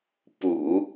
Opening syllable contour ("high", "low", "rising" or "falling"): low